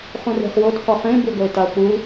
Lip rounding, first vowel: rounded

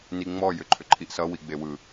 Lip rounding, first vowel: unrounded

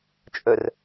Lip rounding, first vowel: rounded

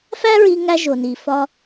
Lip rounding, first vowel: unrounded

